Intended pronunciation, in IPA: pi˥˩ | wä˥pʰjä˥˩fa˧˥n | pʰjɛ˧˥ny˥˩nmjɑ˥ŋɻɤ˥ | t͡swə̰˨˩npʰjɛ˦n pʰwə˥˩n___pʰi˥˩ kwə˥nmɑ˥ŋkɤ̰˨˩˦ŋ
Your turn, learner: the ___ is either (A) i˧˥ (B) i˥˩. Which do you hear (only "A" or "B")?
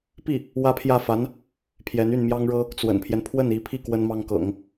A